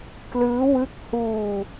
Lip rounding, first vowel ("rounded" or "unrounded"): unrounded